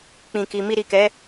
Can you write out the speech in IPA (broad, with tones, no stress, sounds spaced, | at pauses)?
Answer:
k͡p ĩ˨ k i˨ m i˧ ɾ i˨ k ɛ˨˦